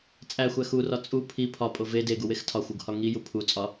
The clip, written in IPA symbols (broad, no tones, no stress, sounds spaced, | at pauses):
t͡sʼ æ xʷ æ x u r ɒ t͡sʼ u pʰ i pʰ ɒ pʼ o v e d e ɡ u w e x tʰ ɒ xʷ u ɡ h ɒ ŋ i j u pʰ u t͡sʼ ɒ